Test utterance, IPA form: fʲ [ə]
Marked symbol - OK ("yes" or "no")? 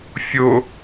no